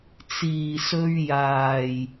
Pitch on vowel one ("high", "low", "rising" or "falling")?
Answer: low